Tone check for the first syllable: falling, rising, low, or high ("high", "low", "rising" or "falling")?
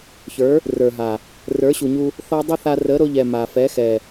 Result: rising